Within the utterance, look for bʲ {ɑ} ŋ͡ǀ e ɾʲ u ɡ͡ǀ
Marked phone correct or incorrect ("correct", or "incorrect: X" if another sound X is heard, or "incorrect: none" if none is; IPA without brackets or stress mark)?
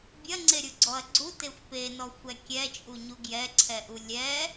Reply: incorrect: ɐ